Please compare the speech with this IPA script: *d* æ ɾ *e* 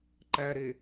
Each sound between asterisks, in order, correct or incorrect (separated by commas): incorrect, correct